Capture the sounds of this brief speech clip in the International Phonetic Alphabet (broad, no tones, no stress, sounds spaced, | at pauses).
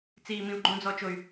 t͡s iː m ĩ u̯ ɡ͡ǃ õ d͡z ɔ t͡ʃ o y̯